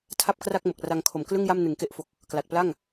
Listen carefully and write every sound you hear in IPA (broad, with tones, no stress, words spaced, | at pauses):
tʰa˥˩p̚kra˥˩k̚mo˨˩k̚ ra˧ŋ kʰo˨˩mklɯ˥˩ŋja˥˩m nɯ˨˩ŋke˦˥ʔfo˨˩k̚ | kla˨˩t̚ pla˥˩ŋ